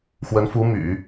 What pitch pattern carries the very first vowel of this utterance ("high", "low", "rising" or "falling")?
rising